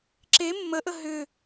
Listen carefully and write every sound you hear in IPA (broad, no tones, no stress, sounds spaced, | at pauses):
ǁ e mː ə ʔ ə ɦ ʏ